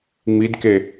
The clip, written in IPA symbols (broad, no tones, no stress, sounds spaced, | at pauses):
ŋ͡m i d k e